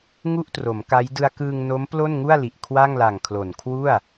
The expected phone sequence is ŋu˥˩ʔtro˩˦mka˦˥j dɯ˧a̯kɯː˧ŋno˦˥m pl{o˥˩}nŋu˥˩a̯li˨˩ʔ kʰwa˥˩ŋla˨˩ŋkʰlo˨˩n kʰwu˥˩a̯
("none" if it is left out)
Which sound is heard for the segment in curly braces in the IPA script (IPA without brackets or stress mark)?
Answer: o˥˩